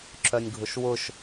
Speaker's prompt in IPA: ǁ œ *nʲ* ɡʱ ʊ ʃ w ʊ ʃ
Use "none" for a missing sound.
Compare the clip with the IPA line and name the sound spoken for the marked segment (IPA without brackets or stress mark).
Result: nʲ